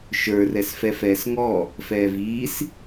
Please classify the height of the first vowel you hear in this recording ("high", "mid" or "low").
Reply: mid